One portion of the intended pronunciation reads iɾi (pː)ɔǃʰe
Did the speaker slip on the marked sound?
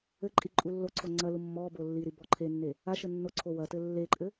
yes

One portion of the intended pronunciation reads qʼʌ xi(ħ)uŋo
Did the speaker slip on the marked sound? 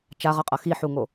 no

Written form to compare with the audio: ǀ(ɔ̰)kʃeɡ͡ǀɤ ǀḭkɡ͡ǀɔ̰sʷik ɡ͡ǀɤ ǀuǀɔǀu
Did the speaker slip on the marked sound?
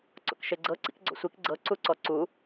no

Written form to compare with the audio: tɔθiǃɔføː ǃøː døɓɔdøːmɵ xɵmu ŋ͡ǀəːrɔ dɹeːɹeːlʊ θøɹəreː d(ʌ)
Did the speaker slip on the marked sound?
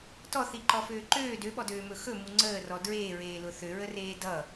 no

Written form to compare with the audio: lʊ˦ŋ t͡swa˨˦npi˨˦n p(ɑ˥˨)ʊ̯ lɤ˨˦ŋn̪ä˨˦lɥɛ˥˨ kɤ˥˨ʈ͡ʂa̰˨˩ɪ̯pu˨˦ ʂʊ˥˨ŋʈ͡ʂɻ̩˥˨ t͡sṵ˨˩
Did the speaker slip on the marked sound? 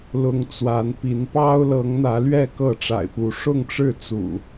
yes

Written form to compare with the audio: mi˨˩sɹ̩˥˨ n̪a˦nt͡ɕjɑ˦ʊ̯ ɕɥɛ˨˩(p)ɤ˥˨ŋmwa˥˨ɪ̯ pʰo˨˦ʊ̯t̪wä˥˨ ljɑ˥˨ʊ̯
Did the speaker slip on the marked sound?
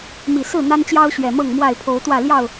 yes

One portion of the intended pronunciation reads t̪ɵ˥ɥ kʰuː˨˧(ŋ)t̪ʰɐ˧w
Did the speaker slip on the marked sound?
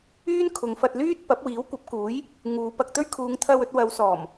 no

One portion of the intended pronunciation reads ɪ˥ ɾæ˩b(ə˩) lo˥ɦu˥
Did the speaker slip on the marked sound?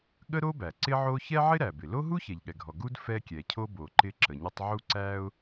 yes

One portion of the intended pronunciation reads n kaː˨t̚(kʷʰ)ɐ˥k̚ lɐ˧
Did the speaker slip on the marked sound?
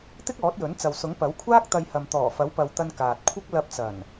no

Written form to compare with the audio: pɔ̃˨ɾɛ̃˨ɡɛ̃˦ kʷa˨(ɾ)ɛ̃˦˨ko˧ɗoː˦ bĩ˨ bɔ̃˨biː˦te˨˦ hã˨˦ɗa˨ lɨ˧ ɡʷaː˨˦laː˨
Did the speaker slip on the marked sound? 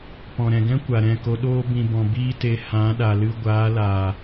no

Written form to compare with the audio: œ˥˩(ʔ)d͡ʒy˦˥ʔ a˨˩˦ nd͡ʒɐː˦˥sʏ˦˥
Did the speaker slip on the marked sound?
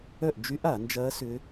no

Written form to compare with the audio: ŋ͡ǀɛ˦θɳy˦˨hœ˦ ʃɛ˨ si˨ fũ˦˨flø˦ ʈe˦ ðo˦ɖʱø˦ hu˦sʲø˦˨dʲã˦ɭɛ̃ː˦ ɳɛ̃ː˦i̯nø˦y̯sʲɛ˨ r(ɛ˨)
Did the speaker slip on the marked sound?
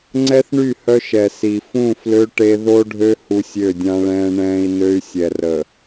yes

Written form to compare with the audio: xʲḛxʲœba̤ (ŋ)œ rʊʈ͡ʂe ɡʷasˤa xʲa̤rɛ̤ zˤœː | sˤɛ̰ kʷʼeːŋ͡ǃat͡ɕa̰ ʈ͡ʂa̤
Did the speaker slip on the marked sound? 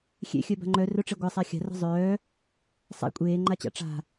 yes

